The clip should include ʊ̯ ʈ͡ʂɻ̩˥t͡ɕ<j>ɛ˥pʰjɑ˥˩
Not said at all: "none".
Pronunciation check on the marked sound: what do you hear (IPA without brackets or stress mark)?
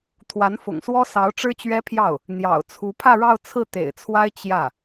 ɥ